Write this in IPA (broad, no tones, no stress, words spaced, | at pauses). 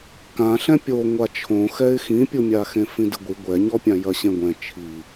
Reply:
kãɬɛ̃ pʲo ŋʷat͡ʃʰõxɛɪ̯ xĩpʲumʲaxẽ fĩdɨɡʷi ɡʷɛɲɔpʲã jɐɕẽɡʷɛ̃ t͡ʃʰi